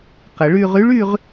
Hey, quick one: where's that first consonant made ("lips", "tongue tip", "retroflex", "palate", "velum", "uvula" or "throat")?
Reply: uvula